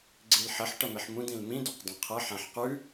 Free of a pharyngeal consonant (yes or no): no